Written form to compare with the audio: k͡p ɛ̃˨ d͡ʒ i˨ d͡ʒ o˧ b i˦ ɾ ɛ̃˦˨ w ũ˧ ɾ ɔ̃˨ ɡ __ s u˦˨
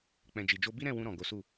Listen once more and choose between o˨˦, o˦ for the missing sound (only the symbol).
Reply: o˨˦